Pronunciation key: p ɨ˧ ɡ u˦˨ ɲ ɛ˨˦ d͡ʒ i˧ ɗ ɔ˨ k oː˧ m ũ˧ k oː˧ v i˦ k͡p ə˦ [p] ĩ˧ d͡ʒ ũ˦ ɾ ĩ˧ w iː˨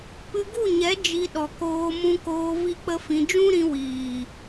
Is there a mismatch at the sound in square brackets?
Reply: yes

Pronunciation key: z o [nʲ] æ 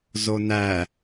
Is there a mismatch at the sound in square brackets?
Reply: yes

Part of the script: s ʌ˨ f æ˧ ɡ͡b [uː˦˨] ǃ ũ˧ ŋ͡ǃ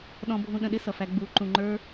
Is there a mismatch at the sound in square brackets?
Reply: yes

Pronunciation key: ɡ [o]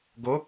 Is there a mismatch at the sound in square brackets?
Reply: no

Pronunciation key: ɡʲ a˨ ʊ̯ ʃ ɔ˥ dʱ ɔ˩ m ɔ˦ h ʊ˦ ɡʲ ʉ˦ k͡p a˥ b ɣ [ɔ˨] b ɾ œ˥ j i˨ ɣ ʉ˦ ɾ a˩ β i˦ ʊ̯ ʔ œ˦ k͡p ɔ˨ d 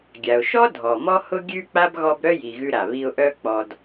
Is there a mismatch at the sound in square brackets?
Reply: yes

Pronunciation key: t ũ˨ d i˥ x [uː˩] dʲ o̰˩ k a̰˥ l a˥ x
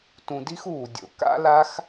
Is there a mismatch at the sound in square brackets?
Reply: no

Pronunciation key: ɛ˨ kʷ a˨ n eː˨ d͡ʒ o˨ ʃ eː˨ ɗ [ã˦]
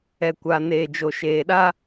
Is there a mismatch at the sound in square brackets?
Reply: yes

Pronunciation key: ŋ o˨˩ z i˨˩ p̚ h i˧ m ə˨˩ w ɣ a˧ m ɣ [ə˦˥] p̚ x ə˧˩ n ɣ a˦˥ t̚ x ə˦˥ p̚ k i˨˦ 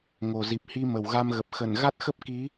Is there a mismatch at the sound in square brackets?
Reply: yes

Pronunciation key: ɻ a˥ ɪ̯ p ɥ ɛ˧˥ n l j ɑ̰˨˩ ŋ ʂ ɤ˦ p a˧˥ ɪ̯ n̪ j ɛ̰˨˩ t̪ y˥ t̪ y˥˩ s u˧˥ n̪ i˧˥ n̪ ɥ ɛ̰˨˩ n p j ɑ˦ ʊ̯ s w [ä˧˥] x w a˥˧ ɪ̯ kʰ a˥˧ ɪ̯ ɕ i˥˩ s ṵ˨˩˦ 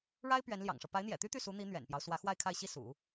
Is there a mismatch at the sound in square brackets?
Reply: no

